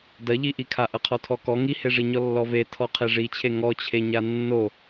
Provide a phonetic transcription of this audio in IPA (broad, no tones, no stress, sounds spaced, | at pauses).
d ɐ ʎ i ʔ i kʰ a ʔ ɐ qʰ ɔ tʰ ɔ k ɔ ŋ i h e ʐ i ɲ ɔ lː ɔ v e tʰ ɔ qʰ e ʐ i t͡ɕʰ e ŋ ɔ t͡ɕʰ e ɲ a nː o